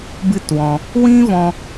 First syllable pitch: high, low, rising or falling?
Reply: high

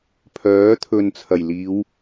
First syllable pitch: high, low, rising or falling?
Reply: rising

